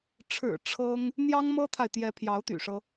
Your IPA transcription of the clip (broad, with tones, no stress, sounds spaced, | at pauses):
ʈ͡ʂʰ ɻ̩˨˩ ʈ͡ʂʰ ɤ˥ ŋ | n̪ j ɑ˥ ŋ m ɤ˥ t̪ʰ a˨ ɪ̯ t̪ j ɛ˧˥ pʰ j ɑ˧˥ ʊ̯ t̪ y̰˨˩ ʂ ɤ˦